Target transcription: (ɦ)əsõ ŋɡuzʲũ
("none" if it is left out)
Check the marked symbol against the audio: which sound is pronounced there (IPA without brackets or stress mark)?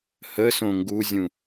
h